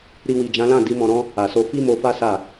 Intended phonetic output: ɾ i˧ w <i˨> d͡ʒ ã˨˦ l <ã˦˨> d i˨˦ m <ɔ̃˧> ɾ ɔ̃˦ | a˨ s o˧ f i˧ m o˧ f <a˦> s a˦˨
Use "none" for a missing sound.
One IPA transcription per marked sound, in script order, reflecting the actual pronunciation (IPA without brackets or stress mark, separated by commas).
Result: i˨, ã˦˨, ɔ̃˧, a˦